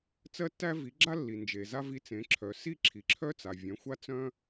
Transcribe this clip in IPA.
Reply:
t͡sɜ˧tːæ˧ vi˩˥ɡ͡ǁa˥ lːi˩nd͡ʒe˩ za˥vi˧t͡sẽ˩˥ǁʰœ˩˥ si˥˩ ǁʰi˩ǁʰœ˥t͡sa˩ vʲœ̃˩˥xʷa˥ t͡sœ̃˥

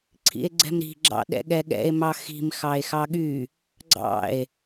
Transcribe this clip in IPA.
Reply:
ǀʰḭe̯ɡ͡ǀɛ̤mɾi̤ ɡ͡ǁɑ̰ɗɛ̰ɠɛɠɛ̰e̯ mɑxi̤m xɑe̯xɑɠy | ɡ͡ǀɑ̰e̯

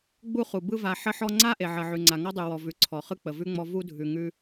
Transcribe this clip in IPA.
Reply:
ɡ͡bu˥χu˩ bɯ˦va˨ ħə˦ħɔ˦ŋ͡ǀa˥ ʔe˨ʕɜ˨ʕʉ˨ŋ͡ǀa˨ ŋɔ˥dˤʉ˩wɔ˩ vʉ˩ ǀʰɔ˩χɯ˥ k͡pə˩vʉ˥ŋ͡mɔ˦ vu˥dʱʉ˨ŋʉ˦

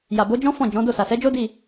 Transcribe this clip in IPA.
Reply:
ja˨bo˨˦d͡ʒɔ̃˦ fɔ̃˦˨ d͡ʒɔ̃˨˦do˦˨ sa˨sɛ˨˦d͡ʒo˦ di˦˨

